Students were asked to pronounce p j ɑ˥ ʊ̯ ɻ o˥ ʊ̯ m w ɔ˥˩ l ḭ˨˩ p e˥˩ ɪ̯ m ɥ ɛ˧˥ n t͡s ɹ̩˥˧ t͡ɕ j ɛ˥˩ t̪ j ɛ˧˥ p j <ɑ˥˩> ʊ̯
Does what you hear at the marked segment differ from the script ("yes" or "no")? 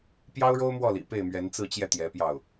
no